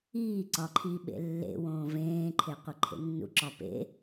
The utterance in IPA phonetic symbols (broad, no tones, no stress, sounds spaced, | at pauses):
iː ǀ ɒ ǃʰ iː ɓ ḛ lː ḛ w õː v ẽː ǃʰ e qʷ i ǃʰ ḛ nː ṵ ǁ ɒ p ḛ